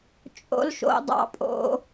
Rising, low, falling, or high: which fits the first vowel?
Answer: high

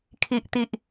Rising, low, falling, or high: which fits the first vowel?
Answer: high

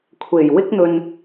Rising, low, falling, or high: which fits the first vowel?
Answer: low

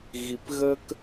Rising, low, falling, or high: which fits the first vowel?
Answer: low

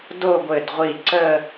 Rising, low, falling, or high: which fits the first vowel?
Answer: falling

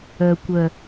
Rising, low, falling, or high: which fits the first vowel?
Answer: low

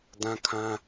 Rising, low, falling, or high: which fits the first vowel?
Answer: high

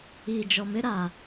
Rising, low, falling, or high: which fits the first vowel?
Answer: low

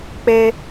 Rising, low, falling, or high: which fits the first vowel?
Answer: high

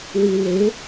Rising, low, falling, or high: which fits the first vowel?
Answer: low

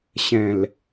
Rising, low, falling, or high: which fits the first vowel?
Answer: low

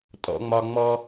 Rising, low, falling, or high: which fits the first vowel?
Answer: high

